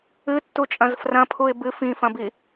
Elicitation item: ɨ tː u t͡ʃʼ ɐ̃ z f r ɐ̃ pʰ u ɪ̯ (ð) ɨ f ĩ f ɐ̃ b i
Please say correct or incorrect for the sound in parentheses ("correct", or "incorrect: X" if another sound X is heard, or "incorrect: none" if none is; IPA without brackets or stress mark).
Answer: incorrect: b